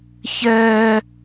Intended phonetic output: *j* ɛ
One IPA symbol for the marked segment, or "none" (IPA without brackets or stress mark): ç